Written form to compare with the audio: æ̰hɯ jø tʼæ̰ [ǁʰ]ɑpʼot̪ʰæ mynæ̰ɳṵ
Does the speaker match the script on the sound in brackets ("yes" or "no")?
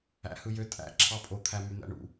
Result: yes